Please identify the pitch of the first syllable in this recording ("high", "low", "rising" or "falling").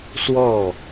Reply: falling